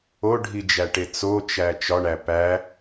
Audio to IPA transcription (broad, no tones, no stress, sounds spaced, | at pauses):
o ɖʱ i d͡ʒ æ ʈ e t͡s o t͡ʃ æ t͡ʃ ɒ ɳ æ p æ